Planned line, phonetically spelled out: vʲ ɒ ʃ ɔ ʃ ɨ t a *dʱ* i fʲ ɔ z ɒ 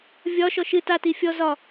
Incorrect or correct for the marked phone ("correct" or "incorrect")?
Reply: incorrect